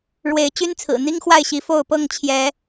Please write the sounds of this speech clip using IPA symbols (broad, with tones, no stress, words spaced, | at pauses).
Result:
ɻwe˨˦ɪ̯ t͡ɕy˦nt͡sʰɹ̩˨˩n̪i˦ŋ xwa˥˨ɪ̯ɕi˨˦ fo˥˨ʊ̯pɤ˥˨ŋ t͡ɕʰjɛ˨˦